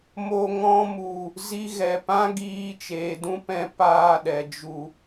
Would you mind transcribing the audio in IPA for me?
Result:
mo˨ ŋɔ̃˧mu˨ | zi˧ɣɛ˨ pã˦ ɡiː˧t͡ʃeː˨dũ˦pɛ̃˧ paː˧ɗɛ˨ d͡ʒu˨

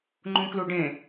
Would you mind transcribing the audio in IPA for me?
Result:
ŋ͡ǃũkluɖẽ

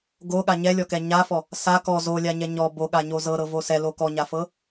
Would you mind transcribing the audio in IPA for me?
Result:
ɡoɠa ɲɛlʲɔkɛ ɲafɔ | sa kɔ zolʲaɲɛ ɲɔ boɠaɲo zɤɾɤvo sɛlo kɔɲafɤ

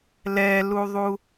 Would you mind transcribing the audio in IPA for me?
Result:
lɛluðˤu

